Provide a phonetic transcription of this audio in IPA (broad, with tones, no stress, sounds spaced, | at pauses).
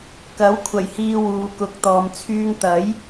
k ɐ˨˥ w kʷʰ ɐ˨˩ j h iː˨ w uː˨ k ʊ˨ k̚ t̪ ɔː˨ m t͡sʰ yː˧ ŋ t̪ ɐ˨˥ j